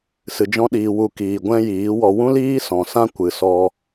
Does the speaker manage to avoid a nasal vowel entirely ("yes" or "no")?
no